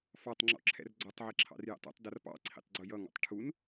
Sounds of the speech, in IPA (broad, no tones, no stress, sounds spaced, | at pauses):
f ɑ tˤ ŋ͡ǁ ɔ̰ ǁʰ ɛ̰ r ɡ͡ǀ ɔ tˤ ʕ i ǁʰ ɑ̰ r j ɛ̰ tˤ ṵ tˤ d ʌ r p ɑ̰ ǀʰ ḭ tˤ ɡ͡ǀ ʊ j ʌ ŋ ɔ̰ tˤ ʈʰ u n